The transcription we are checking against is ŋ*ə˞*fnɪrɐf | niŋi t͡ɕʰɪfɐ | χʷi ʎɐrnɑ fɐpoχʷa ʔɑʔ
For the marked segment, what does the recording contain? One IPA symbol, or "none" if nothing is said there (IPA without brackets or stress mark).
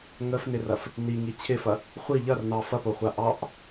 ə